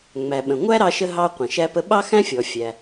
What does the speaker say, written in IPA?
ŋ͡m æ˩ ɓ ə̃˩ ŋʷ æ˥ ɾ ɑ˧ ʃ ə˧ ɦ ɑ˧ qʷ ə̃˩ ʃ æ˧ p ə˧ ɓ ɑ˥ x æ̃˥ fʲ ɔ˩ fʲ æ˩

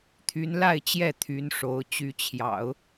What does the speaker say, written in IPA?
t̪ʰ y˧˥ n l a˥˧ ɪ̯ t͡ɕ j ɛ˥˩ t̪ʰ y˧˥ n ʂ o˧˥ ʊ̯ t͡ɕ y˧˥ t͡ɕʰ j ɑ̰˨˩˦ ʊ̯

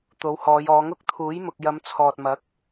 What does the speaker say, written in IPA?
t̪ o˨˧ w h ɔː˨˧ j ɔː˨˧ ŋ ʊ˥ k̚ t̪ʰ uː˨˥ j m ʊ˨ k̚ j ɐ˨˧ m t͡sʰ ɔː˨ t̚ m ɐ˨˥ k̚

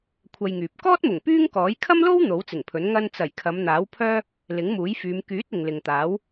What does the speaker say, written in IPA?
kʷʰ ɐ˧ j ŋ yː˨ p̚ k ɔː˥ t̚ m ʊ˨˩ ŋ p yː˥ ŋ k ɔː˨˥ j kʰ ɐ˥ m l o˥ w n̪ o˨˥ w t͡s ɪ˨˩ ŋ pʰ ɵ˨˥ n ŋ ɐ˧ n t͡s ɐ˨˩ j kʰ ɐ˨˧ m n̪ aː˨˥ w pʰ œː˥ | l ɪ˨˥ ŋ m uː˨˥ j f yː˨˧ m k yː˨˥ t̚ ɪ˨ ŋ l ɪ˨ ŋ t̪ aː˨˥ w

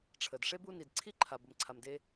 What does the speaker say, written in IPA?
ʈ͡ʂʰ ə˩ d ʂ e˥ b u˦ n i˩ d ǀʰ i˥ ǃʰ a˩ b ə˨ m ǀʰ a˨ m d e˦

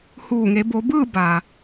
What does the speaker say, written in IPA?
h uː˧˩ ŋ e˩˧ b o˩˧ b ɯː˥˨ b a˩

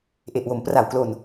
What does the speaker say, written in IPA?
ʔ e˨˩ ʔ w o˩˦ m p r a˨˩ w k l o˧ n

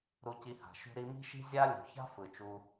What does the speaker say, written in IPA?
ɾ u˧ c i˧ h a̤˨ ʃ ṳ˧ ɾ i˧ m i̤˦ ʃ i̤˦ zʲ a˦ lʲ ṳ˨ ç a̤˦ f ɯ˨ t͡ʃ u˧

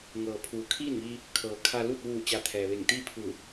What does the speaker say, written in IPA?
ŋ ɤː˩ pʰ uː˩ kʰ iː˥˨ n ʋ i˧ | kʰ ɤː˩ kʰ a˧ l u˥˨ t̚ ʋ uː˧˩ t͡ɕ a˧ t̪ʰ ɛː˩ ʋ e˧˩ ŋ t̪ iː˥˨ pʰ ɯː˧˩

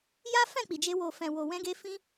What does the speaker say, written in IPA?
j a˦ f ɛ̃˦˨ k͡p i˨ d͡ʒ e˧ w o˨ f ɛ̃˨ w o˨ w ɛ̃˧ ɡ e˧ f ĩ˧

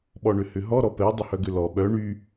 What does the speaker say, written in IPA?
ɓ ɔ ɳ ʏ h ʏ ɦ ɔ ɾ ɔ p ɛ dˤ ʏ h œ ɡ ʏ l ɔ ɓ œ ɳ y

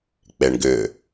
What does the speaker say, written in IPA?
k͡p e ɳ ɡ ʏ

